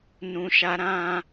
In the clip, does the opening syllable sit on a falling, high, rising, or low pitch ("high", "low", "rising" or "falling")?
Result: low